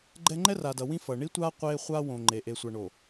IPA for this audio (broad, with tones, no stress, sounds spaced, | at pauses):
ɡ͡ǃ ɛ˦ ŋ͡ǃ ɛ˦ r aː˨ d ʌ˨ w ĩ˦ f ʌ˨ ɳ i˦ tʷ aː˦ qʷ eː˦ χʷ aː˦ w õ˨ ŋ͡ǃ e˨ ʔ e˨ sʷ a˨ ɳ oː˨